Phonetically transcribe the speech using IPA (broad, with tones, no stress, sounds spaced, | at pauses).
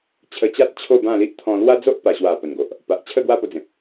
t͡ɕʰ ə˧ t͡ɕ a˦ t̚ t͡ɕʰ o˥˧ b ã˥˧ l i˦ ʔ t̪ʰ ɔ̃˧ l w a˦ d͡z o˦ ʔ p a˨˩ ɕ w a˨˩ p ə˨˩ n ɡ o˨ ʔ | p a˨ ʔ t͡ɕʰ ə˥˧ ɡ w a˥˧ p o˧ d͡z ẽ˨ p̚